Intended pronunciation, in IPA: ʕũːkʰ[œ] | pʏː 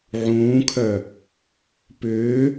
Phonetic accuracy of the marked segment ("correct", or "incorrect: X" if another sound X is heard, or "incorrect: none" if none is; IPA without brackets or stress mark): correct